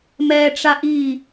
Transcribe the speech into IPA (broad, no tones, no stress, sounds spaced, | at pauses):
m ɛː ʈ͡ʂ a ʔ i